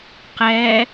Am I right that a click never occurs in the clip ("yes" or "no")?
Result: yes